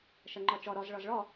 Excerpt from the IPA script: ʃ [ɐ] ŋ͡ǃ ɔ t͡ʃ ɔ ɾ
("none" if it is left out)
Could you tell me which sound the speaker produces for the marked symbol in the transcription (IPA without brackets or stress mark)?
ɐ